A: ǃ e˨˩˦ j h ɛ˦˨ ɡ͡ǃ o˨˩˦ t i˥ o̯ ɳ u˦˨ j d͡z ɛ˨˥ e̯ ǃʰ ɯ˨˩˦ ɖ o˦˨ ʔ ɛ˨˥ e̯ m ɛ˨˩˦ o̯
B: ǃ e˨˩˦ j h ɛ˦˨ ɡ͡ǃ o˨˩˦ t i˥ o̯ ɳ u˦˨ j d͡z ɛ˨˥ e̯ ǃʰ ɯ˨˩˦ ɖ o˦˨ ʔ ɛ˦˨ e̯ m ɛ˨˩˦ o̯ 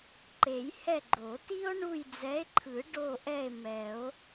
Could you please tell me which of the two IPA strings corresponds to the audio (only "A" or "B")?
B